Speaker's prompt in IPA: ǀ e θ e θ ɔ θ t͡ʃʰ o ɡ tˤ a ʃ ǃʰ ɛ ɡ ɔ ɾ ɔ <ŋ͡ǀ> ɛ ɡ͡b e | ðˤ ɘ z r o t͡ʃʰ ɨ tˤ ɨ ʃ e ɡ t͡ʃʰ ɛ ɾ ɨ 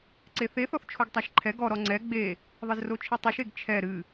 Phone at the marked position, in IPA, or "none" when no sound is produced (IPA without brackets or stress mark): ŋ͡ǀ